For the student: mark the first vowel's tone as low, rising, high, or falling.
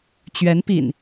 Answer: rising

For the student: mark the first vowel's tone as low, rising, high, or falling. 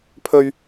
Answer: high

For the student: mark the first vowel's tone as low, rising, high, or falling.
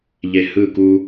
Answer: low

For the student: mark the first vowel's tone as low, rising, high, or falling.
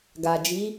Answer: low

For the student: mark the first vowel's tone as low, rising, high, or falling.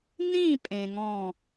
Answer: falling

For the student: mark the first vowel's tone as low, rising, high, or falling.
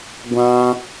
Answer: low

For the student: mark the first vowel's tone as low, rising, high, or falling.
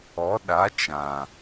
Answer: rising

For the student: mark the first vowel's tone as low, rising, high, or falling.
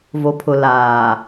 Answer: low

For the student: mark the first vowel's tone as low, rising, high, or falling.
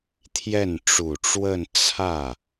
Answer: falling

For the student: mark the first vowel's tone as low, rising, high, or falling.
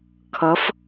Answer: rising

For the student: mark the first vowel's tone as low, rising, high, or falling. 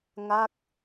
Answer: falling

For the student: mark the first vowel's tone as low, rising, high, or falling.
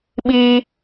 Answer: high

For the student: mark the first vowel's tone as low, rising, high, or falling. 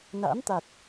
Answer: rising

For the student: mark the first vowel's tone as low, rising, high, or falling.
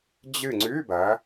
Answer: falling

